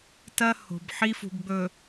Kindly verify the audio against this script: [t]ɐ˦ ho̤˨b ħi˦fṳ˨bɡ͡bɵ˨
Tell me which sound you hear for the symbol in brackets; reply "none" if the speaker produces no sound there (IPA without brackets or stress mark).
t